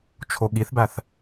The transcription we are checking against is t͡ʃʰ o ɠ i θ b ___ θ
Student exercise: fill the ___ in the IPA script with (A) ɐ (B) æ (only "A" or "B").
B